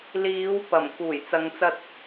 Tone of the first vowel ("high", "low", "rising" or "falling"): rising